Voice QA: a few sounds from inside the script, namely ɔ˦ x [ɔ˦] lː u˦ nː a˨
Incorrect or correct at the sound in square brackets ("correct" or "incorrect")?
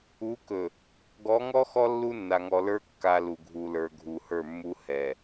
correct